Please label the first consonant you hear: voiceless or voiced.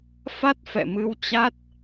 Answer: voiceless